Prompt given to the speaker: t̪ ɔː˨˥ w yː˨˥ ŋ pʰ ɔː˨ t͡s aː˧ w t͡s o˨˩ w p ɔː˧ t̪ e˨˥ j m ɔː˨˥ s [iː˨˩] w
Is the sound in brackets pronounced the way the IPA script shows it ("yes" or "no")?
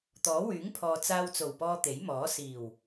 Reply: yes